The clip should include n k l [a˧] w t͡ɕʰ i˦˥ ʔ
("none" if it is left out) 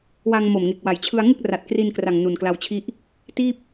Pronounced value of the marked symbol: a˧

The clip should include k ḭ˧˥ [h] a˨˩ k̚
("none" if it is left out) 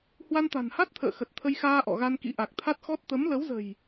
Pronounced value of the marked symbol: ʔ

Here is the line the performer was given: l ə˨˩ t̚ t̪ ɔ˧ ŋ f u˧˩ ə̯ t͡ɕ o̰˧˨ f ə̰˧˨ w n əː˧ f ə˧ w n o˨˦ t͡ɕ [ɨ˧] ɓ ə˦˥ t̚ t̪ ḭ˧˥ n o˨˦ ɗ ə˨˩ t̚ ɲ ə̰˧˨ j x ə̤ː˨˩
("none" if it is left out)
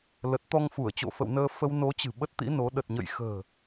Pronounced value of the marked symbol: ɨ̤˨˩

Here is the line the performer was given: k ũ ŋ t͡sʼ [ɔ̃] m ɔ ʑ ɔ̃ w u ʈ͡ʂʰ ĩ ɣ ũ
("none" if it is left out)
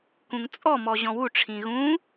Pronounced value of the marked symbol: ɔ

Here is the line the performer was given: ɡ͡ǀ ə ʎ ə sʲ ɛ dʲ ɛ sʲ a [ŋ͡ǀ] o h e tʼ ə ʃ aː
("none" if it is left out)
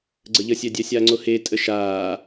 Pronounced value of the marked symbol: ŋ͡ǀ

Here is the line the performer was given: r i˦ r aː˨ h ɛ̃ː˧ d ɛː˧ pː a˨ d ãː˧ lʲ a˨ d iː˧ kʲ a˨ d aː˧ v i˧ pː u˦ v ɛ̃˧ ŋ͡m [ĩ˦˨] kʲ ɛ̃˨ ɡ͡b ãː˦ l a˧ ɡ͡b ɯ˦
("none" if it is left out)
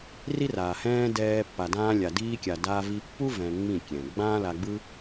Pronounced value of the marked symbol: ĩ˦˨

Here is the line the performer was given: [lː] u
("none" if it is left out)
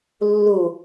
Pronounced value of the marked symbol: lː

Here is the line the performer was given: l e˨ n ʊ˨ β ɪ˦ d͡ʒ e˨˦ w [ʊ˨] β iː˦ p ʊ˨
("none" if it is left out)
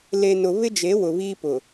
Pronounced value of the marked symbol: ʊ˨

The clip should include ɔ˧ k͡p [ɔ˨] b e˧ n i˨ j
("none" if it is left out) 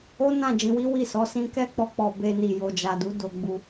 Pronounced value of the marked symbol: ɔ˨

